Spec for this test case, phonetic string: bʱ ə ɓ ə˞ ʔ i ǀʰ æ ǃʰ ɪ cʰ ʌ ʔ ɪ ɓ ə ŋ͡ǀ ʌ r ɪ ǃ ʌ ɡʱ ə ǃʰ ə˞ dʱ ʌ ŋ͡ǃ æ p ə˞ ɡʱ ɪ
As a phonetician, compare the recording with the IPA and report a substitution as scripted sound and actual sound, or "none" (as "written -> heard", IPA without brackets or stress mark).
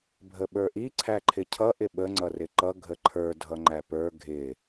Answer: none